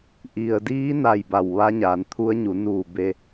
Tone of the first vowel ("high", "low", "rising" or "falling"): low